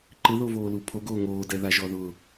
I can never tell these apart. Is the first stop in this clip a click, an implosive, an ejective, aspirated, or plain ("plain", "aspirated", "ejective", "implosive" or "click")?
click